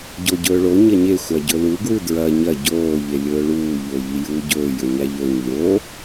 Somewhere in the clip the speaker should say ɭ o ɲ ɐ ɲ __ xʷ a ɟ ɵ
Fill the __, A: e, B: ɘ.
A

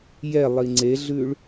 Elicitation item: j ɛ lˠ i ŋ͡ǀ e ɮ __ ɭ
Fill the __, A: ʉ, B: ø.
A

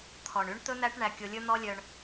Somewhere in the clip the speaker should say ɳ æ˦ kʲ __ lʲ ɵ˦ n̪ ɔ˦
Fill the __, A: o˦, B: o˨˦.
A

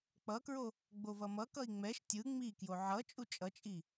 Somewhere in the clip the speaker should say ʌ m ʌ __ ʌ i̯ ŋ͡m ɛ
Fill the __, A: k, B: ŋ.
A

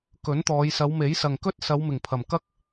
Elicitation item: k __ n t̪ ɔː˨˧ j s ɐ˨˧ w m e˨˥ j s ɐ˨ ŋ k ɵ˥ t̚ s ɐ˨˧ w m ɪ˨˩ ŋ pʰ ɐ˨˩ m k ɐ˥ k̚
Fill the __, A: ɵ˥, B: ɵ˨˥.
B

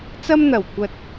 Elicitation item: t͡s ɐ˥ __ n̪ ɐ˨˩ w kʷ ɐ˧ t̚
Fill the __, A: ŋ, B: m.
B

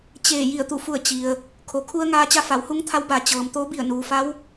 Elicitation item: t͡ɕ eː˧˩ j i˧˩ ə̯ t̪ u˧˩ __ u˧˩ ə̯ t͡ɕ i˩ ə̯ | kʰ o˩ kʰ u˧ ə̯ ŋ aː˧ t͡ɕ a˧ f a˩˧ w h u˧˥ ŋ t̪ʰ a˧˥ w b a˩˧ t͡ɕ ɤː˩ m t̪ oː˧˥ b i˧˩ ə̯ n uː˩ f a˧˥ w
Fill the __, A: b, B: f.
B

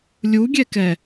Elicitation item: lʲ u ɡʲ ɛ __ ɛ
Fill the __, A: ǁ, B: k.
B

